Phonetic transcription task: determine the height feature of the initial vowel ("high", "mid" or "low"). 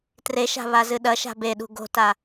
mid